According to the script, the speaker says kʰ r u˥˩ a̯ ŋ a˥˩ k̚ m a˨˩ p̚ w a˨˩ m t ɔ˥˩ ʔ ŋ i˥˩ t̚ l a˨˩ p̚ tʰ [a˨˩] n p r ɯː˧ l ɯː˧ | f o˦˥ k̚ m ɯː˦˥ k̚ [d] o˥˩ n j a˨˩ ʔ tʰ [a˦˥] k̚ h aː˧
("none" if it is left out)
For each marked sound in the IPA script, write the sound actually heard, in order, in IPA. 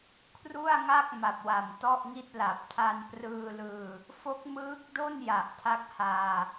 a˧, d, a˦˥

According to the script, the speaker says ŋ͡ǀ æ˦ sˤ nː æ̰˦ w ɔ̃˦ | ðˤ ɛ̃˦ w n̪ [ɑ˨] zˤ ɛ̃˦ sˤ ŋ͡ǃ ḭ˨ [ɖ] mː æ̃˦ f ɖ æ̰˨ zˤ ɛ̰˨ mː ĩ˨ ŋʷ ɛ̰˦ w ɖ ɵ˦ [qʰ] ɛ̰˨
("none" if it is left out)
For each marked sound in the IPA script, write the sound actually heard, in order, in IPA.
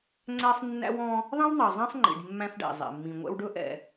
ɑ˨, ɖ, ʔ

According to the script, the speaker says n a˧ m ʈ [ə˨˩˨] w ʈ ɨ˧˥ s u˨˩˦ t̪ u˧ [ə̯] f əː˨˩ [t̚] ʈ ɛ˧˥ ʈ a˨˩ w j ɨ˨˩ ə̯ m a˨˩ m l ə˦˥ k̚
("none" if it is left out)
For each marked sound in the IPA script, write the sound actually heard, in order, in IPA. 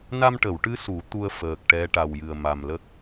ə˨˩˨, ə̯, k̚

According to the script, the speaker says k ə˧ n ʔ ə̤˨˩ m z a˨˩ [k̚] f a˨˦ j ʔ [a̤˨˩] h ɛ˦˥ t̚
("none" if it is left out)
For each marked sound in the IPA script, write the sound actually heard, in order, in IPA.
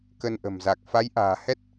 k̚, a̤ː˨˩

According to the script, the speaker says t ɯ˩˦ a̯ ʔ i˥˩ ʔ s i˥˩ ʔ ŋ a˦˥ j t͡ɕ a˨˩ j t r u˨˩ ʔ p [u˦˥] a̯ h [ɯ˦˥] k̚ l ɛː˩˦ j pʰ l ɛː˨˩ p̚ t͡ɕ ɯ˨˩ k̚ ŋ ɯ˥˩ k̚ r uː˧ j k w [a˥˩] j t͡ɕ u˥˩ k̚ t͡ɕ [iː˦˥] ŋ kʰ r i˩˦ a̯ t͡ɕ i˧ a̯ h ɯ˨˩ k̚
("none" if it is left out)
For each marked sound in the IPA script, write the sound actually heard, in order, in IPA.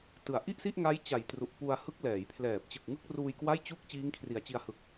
u˧, ɯ˦˥, a˥˩, iː˦˥

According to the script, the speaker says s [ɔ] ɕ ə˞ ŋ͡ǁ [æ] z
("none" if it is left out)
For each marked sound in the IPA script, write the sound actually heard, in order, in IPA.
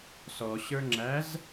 ɔ, æ

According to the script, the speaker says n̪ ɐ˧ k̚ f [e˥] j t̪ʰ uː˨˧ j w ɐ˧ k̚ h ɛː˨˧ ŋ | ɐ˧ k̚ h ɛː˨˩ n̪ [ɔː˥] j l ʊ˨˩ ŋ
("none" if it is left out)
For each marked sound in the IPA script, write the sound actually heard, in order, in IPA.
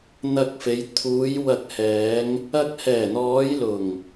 e˨˧, ɔː˨˧

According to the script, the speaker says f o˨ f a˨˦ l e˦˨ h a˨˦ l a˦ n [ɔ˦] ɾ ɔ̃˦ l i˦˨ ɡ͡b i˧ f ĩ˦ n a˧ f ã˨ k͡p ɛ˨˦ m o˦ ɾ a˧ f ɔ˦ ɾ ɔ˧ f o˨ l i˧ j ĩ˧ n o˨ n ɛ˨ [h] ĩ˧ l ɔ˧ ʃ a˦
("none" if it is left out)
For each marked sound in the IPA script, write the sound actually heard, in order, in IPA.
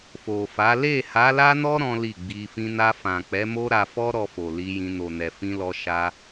ɔ˦, f

